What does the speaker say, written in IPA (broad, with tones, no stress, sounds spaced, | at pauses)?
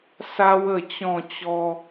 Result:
s a˦ w ə˥˧ t͡ɕ ɔ̃˥˧ t͡ɕ ɔ˦